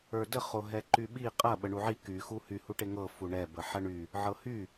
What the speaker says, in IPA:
ə˞də χoɦɛǃyɓi qʼɐ ɓəɳuʕi ky xuhy huʈeŋɤ fuɳɛ bəħɐɳy | ʕɤhy

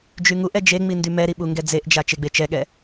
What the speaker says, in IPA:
d͡ʒyŋuʔɛ d͡ʒeŋ͡mi ndymɛɾi ɓuŋɡɛd͡zeʔd͡ʒa t͡ʃeɡ͡bet͡ʃɛɠɛ

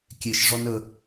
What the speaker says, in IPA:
kʲeʃʐɔn ə

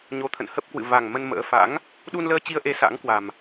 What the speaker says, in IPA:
ɲo˨˦t̪ʰə̰˧˨n hə˦˥p̚kwɨ̰˧˨ va˨˩ŋ mə˧nmə̰ː˧˥ fa̰˧˥ŋ | ɗu˧nləː˧t͡ɕi˧ə̯ʔe˨˦ sa̰˧˥ŋkwa˨˩m

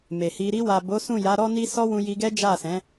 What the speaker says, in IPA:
me˨hi˧ ɾi˧wa˨bo˨˦ sũ˦˨ja˨˦ɾɔ˦ ni˦ sɔ˦wũ˧ji˧ɡɛ˦ d͡ʒa˦˨sɛ̃˨˦

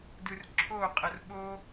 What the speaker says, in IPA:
dɯrǁʰo qʼɤrɓo

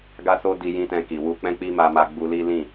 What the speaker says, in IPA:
ɡa˦so˦di˧ jĩ˦tɛ̃˧ki˨ wu˧k͡pɛ̃˦ k͡pi˦ma˧ma˧ ɡ͡bu˧li˦ lĩ˦˨

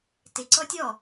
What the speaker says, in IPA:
tɪǀɔ tʲɔ

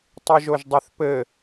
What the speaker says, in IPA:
tˤɯʒoʒdˤɘθpɘ

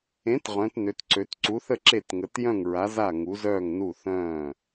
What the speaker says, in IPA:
ẽ˩˥t ʁœ̃˩˥tnø˩˥tǀø˩˥t ǀu˩˥θə˥˩ ǁe˥˩tŋə˩˥t jœ̃˥˩ŋ ɹa˩˥ za˥˩ŋu˩˥zœː˥˩ŋnu˥˩ θœ̃ː˥˩

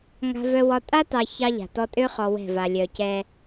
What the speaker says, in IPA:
ŋa̤˦vœ˦wɒ˦ tʼa˦tɑ˨ çɑ˦ʎa̤˨tɔ˦ tʼø˦χɔ˨ wɛ̤˦˨va˨lʲœ˨ cɛ˦

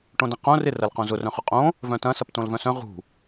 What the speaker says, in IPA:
ʈõdɐ̃qõ rɪ rɐlqõzʊ rœ̃χʊqʼõ | vœ̃tɐ̃ sɐptõlvœ̃sœ̃ ʁṳ

